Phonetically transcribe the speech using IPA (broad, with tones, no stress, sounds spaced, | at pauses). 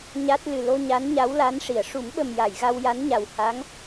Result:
ɲ a˦˥ t̚ l ɨ˨˩ l o˧ ɲ a˧˥ n ɲ a˧˥ w l a˧˥ n ʂ i˨˩˨ ə̯ ʂ u˨˩˦ m ɓ ə˨˩ m j a˨˩˨ j ɣ a˧ w j a˧˥ n ɲ a˨˩ w h a˧˥ ŋ